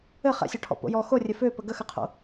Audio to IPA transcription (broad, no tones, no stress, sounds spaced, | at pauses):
ɘ χ ɛ̰ sʲ ɔ ʈʰ ɔ̰ p o̰ j ɔ x o rʲ ɘ f ø p ə ɡ ə x ɘ qʰ o̰